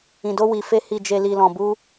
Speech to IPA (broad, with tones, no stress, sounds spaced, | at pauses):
ĩ˨ d o˧ w i˨ f e˧ h i˨ d͡ʒ e˨ l i˨ l ɔ̃˨ b u˧